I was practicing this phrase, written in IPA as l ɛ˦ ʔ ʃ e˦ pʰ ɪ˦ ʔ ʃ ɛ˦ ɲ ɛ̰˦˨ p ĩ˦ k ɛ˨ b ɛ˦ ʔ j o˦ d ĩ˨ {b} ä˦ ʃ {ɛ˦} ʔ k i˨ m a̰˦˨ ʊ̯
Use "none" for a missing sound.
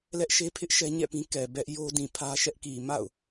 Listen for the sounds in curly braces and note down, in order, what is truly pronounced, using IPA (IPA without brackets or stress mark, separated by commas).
pʰ, ɛ˦